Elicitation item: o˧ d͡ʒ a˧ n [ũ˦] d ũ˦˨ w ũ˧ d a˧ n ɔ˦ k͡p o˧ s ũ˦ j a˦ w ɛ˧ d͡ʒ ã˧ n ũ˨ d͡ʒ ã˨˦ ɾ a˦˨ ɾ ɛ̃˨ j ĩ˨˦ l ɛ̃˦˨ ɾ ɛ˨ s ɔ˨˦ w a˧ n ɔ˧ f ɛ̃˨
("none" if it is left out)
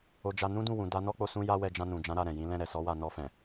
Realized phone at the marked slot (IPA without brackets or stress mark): ũ˦